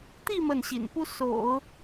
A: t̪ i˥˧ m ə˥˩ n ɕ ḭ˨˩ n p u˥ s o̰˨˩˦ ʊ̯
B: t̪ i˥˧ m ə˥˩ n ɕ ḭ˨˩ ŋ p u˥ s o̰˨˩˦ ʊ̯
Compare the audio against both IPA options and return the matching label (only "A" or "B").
A